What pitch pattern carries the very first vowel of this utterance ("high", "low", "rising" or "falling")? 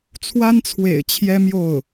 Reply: high